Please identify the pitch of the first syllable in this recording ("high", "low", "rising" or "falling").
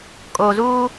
low